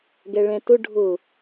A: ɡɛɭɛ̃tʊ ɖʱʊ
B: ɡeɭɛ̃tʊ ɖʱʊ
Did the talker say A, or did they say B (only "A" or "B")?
A